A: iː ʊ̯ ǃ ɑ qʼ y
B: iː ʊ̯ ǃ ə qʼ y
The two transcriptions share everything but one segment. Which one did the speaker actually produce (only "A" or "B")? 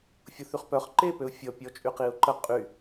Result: B